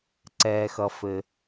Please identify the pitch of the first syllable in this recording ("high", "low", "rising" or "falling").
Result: low